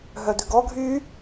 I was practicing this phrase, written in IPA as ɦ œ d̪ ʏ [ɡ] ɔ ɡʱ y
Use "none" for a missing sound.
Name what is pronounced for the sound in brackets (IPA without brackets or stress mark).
ɡ